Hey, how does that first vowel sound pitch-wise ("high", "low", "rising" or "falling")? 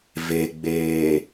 low